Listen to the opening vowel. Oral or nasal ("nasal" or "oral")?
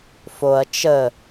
oral